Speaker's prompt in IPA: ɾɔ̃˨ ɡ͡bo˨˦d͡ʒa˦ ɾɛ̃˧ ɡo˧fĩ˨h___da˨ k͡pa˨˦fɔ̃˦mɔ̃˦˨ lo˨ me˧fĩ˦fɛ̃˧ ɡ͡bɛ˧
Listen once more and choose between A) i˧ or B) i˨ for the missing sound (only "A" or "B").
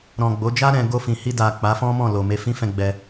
A